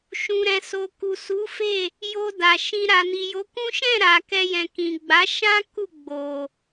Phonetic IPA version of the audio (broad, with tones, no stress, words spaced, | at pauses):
ʃũ˨ɾɛ̃˨so˨ku˨ su˨˦fe˦˨ | jo˧da˨ ʃĩ˧ ɾa˨ni˨jo˨˦kũ˦ ʃɛ̃˦˨ ɾa˨ kɛ˧jɛ̃˨ kĩ˨ɡ͡ba˨˦ʃã˦ ku˦˨ɡ͡bo˨